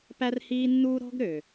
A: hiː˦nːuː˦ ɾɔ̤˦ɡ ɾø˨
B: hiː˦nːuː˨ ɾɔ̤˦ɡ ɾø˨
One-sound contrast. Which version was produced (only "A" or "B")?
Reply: A